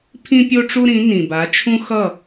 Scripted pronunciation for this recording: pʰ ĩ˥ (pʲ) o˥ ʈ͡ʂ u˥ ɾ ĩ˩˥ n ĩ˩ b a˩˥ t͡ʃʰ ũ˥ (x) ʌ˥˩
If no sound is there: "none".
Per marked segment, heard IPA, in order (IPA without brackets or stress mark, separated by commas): pʲ, x